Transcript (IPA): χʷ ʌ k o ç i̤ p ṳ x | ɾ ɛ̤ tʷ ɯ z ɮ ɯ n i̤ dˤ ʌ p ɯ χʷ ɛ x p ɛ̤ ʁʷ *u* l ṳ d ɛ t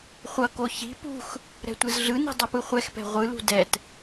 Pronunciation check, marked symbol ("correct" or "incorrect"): incorrect